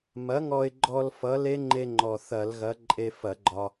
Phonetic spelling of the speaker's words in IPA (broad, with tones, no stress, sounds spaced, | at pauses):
m ɐ˨˥ ŋ ɔ˧ ɪ̯ ɡ͡ǃ ɔ˧ l f ʌ˨˥ l e˦˥ ŋ͡ǃ e˧ ŋ͡ǃ ɔ˨˩ θ ɐ˧˩˧ l ɣ ɐ˨˥ ǃʼ e˧ f ɐ˧˩˧ ɡ͡ǃ ɒ˧